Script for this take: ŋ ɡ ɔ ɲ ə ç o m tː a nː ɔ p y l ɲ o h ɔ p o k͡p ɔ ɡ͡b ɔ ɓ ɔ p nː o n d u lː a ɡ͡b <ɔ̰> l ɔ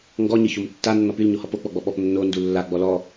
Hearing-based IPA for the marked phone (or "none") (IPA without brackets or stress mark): ɔ